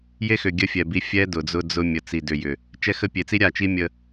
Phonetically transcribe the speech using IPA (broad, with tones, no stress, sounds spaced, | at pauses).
j e˦ x ʏ˨ ɡʲ ə˦ fʲ ɛ˨ b i˦ fʲ ɛ˦ d ʊ˨ d͡z ʊ˦ d͡z ʊ˦ mʲ ə˨ t͡s i˨ d ʏ˨ j ʏ˨ | t͡ʃ ɛ˦ x ə˦ pʲ e˨ t͡s i˦ ɾʲ a˦˨ t͡ʃ i˦ mʲ ə˨